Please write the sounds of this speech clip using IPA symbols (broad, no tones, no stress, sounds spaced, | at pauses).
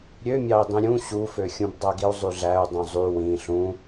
ɾʲ ø mʲ ɑ i̯ dˤ ĩ ɾʲ ũ ɕ u f ø xʲ ũ b dˤ æ ɡ i u̯ zˤ y ɮ æ u̯ dˤ ũ zˤ y w ĩ ɬ ũ